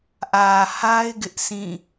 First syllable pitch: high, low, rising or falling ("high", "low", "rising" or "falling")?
low